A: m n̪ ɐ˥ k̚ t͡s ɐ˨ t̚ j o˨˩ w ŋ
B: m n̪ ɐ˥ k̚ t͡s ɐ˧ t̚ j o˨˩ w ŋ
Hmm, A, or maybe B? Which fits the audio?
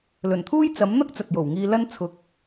A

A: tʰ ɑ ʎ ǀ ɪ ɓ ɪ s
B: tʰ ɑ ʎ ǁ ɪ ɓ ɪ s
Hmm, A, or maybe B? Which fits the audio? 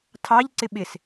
A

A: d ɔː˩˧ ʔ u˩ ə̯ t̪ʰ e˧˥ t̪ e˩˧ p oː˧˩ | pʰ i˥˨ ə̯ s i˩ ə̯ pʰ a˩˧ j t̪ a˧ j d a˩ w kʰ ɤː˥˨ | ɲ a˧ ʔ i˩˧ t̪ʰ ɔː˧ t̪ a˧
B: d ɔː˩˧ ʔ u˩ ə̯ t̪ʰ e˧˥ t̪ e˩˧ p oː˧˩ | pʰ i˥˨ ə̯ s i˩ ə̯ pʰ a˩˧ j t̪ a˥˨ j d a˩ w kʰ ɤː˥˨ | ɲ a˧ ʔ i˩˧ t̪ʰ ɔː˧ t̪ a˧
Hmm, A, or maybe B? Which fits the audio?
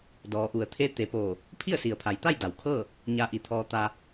B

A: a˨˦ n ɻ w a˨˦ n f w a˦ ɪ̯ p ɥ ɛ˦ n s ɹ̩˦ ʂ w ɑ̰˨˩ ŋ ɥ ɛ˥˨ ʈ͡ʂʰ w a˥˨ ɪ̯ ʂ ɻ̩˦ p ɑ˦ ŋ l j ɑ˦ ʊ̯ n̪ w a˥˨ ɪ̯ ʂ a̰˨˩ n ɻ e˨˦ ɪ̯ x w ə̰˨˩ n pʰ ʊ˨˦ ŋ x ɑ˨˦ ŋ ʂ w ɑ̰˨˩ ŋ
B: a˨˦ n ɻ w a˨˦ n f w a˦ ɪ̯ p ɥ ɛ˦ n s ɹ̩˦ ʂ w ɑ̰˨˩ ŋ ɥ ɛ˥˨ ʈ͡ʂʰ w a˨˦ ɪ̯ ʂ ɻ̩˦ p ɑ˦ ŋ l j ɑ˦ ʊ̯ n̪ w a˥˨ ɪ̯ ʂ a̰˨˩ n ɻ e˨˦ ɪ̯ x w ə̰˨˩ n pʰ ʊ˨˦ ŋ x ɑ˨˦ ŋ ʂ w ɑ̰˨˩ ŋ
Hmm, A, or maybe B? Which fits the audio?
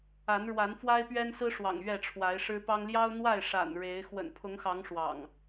B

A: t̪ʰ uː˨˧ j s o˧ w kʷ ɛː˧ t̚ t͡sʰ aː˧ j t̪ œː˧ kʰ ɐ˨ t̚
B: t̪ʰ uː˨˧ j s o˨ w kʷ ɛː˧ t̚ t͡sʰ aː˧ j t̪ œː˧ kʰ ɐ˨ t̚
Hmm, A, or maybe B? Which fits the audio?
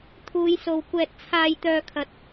B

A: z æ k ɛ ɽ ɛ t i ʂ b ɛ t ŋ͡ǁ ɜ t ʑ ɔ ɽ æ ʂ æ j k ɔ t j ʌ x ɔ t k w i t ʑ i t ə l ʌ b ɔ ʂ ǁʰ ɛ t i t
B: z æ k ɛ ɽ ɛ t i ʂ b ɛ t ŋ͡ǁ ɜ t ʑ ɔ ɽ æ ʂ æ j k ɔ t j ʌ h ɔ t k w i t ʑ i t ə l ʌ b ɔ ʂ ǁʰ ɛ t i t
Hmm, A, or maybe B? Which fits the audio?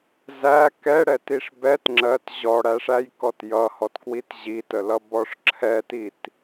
B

